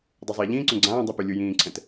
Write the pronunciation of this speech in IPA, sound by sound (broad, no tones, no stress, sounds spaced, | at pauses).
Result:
dˤ u zˤ iː ʎ ĩː ǀ õ ɡ͡ǀ ãː dˤ u p ɯ lʲ u j ĩː ǀʰ ɛ̃ t